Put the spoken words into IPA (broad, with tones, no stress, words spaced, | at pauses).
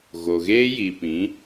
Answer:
ɣo˨ɣeː˦ji˨pĩ˨˦